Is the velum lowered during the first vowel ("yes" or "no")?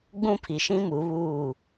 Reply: yes